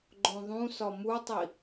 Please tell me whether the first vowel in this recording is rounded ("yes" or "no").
yes